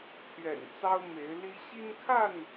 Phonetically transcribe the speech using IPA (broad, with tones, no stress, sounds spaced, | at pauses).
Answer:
t̪ʰ ɥ ɛ̰˨˩ n t͡s ɑ˦ ʊ̯ m e˨˦ ɪ̯ l i˦ ɕ i˦ n kʰ a˥˨ n